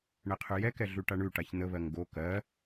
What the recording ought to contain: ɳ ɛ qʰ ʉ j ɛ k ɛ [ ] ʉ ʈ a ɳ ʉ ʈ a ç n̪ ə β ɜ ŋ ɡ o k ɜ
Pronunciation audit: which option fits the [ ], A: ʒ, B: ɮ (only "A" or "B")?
B